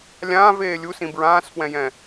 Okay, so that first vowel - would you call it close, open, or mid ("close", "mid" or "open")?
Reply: open